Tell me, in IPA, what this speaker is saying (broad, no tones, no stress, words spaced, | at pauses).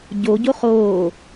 ɟoɟo χoː